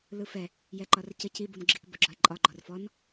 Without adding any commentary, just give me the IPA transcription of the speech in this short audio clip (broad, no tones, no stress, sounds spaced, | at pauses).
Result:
l ɯ f ɛ | j ɛ ǃ ɒ r c ə c i b u n ɡ͡ǁ i k b ə ɡ͡ǁ ɒ e̯ ǃʼ ɒ ɡ͡ǃ ɔ r f ɔ n